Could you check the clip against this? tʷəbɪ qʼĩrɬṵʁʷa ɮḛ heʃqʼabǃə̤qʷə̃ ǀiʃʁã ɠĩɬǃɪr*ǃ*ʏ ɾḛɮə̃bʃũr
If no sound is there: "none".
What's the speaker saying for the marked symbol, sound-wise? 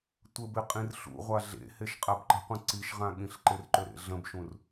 ǃ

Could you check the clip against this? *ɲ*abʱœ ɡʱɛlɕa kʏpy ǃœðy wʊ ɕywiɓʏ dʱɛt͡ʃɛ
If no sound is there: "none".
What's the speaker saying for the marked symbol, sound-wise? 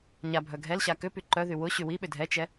ɲ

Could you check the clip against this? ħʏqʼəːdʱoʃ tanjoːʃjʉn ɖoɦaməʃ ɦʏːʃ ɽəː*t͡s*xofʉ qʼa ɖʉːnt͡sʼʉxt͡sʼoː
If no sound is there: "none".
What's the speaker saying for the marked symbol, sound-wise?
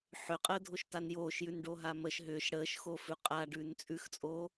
ʃ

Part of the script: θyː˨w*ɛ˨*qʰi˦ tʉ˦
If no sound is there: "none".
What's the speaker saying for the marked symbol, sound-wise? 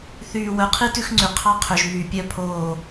œ˨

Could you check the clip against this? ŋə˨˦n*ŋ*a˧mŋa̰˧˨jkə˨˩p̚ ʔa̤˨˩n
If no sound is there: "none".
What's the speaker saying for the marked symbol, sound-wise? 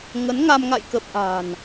ŋ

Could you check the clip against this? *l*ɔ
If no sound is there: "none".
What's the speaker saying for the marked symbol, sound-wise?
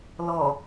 l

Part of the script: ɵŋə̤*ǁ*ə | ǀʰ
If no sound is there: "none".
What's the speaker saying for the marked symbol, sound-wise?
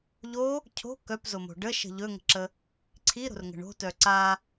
ǁ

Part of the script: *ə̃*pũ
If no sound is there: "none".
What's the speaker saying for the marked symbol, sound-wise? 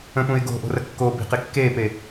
ə̃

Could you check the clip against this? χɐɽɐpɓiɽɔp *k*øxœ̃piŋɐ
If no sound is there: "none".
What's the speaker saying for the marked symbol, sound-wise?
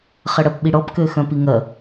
k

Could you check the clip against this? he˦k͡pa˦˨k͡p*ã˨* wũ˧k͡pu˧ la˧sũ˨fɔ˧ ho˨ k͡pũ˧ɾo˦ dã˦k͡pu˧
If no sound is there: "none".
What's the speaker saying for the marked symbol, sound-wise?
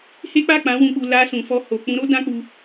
ã˨˦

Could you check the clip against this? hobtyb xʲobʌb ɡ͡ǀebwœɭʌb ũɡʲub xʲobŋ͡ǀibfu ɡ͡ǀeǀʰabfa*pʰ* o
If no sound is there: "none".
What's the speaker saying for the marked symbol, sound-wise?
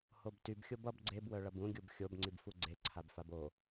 b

